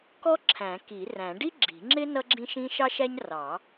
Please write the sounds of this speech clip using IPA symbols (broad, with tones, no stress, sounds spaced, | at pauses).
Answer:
k ɔ˥ ǁʰ æ̃˨˩˦ k i˨˩˦ r æ̃˨˩˦ ɖ i˥ ɡ͡ǁ i̤˨˩˦ ŋ͡ǁ ɪ˥ n ʌ˥ ɡ͡ǁ ĩ˥ ʃ ĩ˥ ʃ ɑ˥ ʃ æ˥ ɲ r ɑ˨˩˦